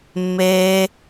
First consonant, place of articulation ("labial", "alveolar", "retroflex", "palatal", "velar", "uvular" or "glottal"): labial